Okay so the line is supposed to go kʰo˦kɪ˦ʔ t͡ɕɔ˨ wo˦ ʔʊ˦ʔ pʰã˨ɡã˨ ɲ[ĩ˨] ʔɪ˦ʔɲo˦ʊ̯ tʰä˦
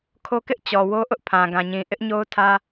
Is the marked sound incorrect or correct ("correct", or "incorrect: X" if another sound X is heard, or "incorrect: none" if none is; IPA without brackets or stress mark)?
correct